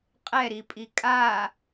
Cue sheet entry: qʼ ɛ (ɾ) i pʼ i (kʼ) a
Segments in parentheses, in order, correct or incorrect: correct, correct

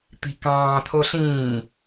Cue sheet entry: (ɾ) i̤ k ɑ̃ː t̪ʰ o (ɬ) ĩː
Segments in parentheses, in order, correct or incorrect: incorrect, correct

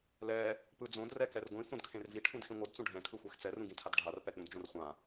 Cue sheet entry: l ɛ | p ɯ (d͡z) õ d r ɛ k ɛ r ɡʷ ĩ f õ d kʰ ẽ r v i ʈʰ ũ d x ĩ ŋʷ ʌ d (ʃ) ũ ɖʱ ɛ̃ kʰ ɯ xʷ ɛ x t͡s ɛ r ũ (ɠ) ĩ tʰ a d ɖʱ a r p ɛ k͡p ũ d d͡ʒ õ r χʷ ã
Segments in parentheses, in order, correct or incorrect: correct, incorrect, incorrect

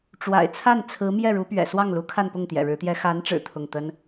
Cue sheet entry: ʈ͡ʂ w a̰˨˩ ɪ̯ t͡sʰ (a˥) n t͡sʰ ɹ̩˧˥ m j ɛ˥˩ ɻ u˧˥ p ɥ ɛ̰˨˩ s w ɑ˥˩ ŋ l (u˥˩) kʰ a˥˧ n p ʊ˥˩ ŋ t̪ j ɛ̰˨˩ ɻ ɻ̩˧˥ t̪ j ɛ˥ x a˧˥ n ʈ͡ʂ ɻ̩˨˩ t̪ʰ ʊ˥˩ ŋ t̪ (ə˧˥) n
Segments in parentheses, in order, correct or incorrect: incorrect, incorrect, incorrect

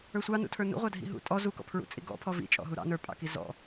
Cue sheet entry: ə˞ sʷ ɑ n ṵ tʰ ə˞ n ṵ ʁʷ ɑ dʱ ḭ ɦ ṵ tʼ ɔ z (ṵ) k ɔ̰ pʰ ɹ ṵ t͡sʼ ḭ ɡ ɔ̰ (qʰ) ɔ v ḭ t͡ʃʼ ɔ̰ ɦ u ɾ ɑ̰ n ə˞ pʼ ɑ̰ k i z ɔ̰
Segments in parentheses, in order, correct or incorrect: incorrect, incorrect

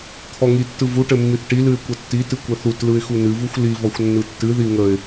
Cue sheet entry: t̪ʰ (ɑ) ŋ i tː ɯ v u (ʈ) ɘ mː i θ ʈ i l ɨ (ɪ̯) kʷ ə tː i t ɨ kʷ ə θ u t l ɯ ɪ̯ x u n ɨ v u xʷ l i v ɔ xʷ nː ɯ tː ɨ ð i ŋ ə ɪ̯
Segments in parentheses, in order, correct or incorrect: incorrect, correct, correct

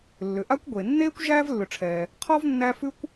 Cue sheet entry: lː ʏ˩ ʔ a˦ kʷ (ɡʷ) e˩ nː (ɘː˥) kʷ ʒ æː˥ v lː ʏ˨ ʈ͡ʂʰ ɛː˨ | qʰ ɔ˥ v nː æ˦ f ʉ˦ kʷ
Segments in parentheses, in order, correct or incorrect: correct, incorrect

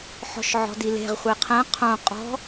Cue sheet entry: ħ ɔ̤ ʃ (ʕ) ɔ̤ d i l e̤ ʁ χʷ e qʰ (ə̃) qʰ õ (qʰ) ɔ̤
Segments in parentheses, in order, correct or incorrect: correct, incorrect, incorrect

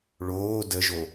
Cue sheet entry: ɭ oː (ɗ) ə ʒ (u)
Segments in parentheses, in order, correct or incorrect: incorrect, incorrect

